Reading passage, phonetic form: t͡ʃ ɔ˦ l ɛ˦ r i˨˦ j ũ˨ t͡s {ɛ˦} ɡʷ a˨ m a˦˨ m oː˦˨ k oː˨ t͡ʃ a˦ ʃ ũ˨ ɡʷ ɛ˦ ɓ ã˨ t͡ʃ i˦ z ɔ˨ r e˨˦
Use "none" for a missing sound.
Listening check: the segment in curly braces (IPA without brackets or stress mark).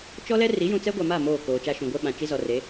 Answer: ɛ˦